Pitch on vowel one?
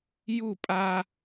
falling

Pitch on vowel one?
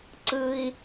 low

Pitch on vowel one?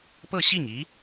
falling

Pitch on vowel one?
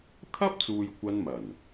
high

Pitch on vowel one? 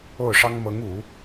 falling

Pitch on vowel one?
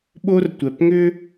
high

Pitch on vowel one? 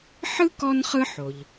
high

